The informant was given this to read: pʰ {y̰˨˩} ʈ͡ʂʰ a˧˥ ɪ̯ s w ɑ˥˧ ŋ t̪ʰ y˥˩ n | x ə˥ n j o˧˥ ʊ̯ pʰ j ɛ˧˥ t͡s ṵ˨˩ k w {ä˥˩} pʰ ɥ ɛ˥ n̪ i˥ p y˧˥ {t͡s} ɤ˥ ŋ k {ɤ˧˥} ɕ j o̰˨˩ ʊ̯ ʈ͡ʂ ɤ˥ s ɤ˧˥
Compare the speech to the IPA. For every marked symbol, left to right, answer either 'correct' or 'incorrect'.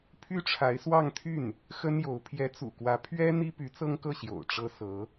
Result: incorrect: y˥, incorrect: ä˧˥, correct, incorrect: ɤ˥˩

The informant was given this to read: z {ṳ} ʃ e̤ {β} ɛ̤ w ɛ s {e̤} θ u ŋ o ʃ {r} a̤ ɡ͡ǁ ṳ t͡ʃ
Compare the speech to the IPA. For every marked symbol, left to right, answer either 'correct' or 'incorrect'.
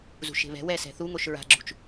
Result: correct, correct, incorrect: ɛ̤, incorrect: ɹ

